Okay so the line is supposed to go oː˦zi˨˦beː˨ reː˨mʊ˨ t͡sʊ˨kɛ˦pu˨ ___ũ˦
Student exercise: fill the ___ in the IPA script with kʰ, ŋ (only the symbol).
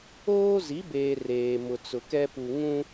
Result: ŋ